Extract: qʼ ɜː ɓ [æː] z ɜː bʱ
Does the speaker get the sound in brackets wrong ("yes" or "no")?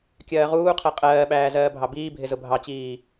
no